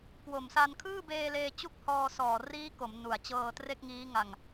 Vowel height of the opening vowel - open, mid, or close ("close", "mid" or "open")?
mid